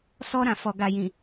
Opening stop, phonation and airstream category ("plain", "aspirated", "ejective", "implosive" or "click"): plain